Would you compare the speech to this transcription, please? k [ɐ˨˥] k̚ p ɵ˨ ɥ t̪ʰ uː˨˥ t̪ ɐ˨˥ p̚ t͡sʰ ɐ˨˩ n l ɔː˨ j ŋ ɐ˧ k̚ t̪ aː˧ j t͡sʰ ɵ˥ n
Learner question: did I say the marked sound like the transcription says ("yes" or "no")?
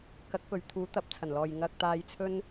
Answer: yes